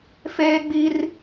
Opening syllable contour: high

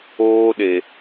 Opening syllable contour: high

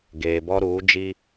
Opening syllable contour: low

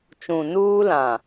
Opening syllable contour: low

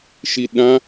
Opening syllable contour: low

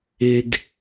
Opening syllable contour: low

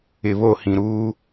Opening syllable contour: low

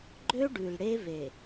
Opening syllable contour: high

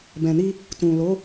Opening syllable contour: low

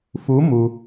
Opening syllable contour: rising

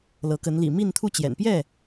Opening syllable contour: rising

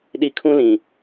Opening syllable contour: low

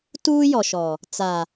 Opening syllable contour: high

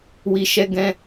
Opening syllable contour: low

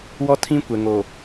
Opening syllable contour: high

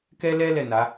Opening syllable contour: high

